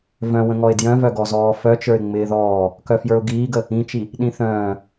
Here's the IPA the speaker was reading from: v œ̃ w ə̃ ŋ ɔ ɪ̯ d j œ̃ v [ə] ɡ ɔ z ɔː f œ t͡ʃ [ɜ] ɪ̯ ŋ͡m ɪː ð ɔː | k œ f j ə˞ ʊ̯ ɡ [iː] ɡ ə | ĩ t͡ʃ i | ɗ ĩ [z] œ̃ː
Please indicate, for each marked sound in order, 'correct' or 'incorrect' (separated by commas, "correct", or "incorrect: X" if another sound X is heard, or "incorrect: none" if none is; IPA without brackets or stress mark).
incorrect: œ, incorrect: ə˞, correct, incorrect: θ